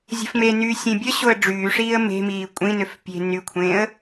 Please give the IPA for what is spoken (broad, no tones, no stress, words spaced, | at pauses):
zʲə̤fmenyː sʲẽbʲəɕoə̯ ɖ͡ʐyː ʂiːə̯me̤miː kʷʼĩnøf pʲe̤ nykʷʰẽːə̯